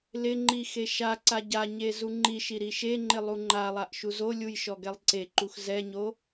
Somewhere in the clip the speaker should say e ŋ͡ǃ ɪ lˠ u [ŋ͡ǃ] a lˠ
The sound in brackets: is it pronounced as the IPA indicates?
yes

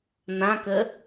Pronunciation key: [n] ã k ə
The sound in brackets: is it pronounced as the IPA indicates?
yes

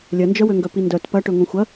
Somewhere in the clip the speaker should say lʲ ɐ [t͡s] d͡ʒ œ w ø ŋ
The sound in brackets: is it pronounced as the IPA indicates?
no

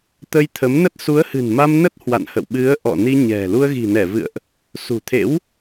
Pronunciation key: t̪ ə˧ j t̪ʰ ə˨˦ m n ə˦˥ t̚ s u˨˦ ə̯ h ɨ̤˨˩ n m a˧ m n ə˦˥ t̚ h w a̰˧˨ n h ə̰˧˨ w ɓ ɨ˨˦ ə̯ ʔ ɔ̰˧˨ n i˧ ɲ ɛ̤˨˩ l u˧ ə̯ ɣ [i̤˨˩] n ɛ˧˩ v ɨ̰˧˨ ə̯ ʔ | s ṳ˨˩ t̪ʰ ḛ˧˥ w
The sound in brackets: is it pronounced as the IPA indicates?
yes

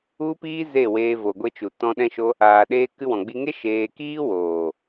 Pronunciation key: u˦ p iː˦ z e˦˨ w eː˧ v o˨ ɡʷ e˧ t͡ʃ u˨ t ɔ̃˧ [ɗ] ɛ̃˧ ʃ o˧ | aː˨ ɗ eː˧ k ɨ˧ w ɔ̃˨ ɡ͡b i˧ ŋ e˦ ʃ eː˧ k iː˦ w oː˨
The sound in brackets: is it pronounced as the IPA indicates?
yes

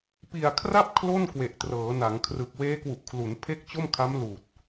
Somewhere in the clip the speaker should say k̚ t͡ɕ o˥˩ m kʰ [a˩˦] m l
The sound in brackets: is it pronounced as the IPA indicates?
no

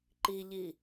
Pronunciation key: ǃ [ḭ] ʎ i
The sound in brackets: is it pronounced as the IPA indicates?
no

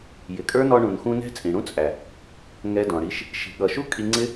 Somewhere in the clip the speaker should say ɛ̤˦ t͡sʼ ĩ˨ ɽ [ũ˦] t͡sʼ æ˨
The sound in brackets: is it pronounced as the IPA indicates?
yes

